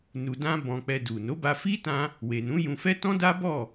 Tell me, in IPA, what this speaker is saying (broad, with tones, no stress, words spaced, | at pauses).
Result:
nu˧dã˦ bɔ̃˧k͡pɛ˧du˨ no˨˦ba˧fi˦ tã˦ | we˨nũ˨˦jũ˧fɛ˦ tɔ̃˦da˦ bɔ˦˨